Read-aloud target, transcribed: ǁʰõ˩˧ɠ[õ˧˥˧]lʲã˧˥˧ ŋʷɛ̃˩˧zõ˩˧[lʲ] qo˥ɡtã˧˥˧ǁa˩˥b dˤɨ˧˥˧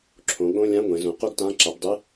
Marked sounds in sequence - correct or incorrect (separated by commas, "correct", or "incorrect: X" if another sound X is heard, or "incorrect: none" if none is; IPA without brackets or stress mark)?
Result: correct, incorrect: none